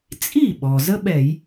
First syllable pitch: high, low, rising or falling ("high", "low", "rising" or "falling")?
falling